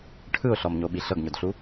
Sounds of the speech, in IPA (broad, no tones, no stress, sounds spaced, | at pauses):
ʈʰ ɯ ʊ̯ ɬ ɔ m ɲ o ɓ i ɬ ɤ ɡ ɲ o d ɬ u